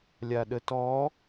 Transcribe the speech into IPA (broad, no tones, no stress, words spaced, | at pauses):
lʲaɗətɔ